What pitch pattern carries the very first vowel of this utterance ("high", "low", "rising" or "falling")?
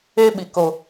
high